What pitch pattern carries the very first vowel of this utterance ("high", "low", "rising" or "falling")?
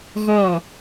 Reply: falling